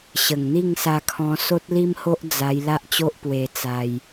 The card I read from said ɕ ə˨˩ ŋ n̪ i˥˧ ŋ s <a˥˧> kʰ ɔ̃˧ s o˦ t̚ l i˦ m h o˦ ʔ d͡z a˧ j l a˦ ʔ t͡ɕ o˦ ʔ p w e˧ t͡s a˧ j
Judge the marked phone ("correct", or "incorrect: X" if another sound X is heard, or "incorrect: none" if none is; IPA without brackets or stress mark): incorrect: a˧